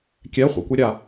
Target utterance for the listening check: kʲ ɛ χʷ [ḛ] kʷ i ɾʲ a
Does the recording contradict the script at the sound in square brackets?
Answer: no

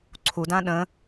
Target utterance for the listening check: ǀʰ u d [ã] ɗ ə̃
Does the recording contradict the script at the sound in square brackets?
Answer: no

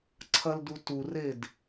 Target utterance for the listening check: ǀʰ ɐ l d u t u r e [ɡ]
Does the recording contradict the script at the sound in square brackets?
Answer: yes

